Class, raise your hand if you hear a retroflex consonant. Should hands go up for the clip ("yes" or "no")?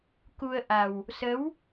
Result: no